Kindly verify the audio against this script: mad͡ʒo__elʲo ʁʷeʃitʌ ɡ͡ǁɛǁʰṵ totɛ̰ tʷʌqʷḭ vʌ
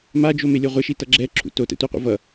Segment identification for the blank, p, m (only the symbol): m